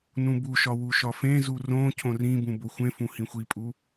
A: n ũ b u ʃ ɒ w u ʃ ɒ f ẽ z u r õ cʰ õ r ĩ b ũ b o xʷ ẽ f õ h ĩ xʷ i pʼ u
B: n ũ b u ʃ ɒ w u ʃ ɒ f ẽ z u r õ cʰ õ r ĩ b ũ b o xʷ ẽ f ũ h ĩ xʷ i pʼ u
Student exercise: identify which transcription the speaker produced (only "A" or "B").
B